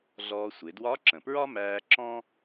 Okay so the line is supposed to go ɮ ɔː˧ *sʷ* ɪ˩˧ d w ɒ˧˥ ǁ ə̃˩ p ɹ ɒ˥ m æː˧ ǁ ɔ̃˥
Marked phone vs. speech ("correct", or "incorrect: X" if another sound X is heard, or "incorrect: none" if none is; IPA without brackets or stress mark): correct